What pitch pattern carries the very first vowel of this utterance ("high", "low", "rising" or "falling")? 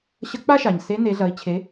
rising